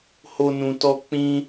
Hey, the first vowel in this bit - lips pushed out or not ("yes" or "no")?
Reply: yes